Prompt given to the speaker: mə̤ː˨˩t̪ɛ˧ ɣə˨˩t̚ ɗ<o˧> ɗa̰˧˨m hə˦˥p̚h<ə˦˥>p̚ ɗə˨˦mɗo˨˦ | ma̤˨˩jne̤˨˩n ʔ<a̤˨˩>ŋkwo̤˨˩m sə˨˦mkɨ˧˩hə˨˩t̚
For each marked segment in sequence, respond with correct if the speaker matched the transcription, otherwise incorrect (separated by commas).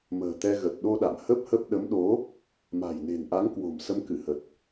correct, correct, incorrect